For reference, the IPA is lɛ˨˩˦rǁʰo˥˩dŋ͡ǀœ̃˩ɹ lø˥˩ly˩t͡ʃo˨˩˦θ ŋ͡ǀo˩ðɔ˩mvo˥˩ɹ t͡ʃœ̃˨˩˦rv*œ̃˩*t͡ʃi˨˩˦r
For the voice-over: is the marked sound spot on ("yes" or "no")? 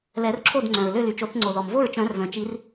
yes